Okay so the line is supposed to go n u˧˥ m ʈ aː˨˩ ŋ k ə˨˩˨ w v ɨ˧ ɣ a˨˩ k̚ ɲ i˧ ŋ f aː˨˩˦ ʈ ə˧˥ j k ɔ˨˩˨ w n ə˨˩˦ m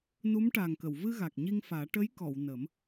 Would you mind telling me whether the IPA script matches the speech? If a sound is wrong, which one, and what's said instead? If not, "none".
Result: none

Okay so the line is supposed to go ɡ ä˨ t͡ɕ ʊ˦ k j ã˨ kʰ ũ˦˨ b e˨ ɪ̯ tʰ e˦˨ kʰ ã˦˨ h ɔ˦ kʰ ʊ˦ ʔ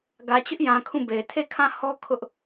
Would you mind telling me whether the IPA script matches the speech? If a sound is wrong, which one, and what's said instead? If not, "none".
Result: k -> ʔ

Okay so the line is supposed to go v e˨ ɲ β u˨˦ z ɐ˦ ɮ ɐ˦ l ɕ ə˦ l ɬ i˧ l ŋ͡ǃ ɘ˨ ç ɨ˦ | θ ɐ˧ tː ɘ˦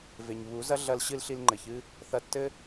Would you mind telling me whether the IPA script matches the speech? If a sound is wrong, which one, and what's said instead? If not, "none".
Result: ə˦ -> ɨ˦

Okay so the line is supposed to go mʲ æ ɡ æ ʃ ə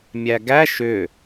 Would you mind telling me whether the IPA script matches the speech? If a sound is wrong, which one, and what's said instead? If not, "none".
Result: ə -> ʏ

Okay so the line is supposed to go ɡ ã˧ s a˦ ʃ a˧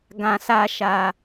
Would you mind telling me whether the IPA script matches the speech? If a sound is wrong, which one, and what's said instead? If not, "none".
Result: none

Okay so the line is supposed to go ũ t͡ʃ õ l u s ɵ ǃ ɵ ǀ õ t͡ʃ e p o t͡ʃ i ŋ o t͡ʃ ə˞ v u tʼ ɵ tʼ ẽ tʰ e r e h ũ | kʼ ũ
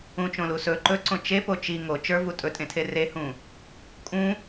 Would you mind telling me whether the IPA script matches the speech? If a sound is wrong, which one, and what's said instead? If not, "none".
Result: none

